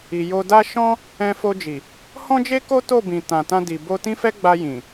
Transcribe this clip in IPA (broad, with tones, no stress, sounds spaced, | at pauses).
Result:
i˨ j o˧ d a˦ ʃ ɔ̃˦ | ɛ̃˧ f o˧ d͡ʒ i˨ | h ɔ̃˦ d͡ʒ e˦ k o˦ t o˦˨ b ĩ˨ t ã˨ t ã˧ d i˨ b o˧ t ĩ˦ f ɛ˦ ɡ͡b a˧ j ĩ˨